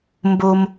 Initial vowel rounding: rounded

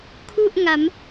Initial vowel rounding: rounded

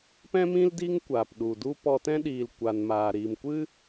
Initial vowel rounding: unrounded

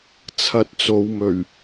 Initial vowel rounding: unrounded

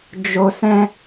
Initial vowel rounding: rounded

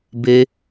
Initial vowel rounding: unrounded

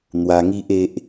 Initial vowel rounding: unrounded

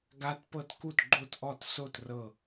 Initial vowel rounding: unrounded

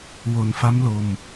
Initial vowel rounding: rounded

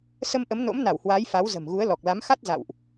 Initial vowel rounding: unrounded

